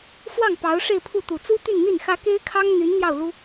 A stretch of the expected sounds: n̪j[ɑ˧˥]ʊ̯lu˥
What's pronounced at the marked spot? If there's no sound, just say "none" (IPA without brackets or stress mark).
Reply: ɑ˥˩